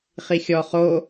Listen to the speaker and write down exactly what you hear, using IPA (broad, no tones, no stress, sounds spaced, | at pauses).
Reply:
χ i xʲ ɔ χ o